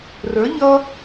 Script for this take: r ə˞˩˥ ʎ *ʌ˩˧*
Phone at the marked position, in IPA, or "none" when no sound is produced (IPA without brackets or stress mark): ʌ˦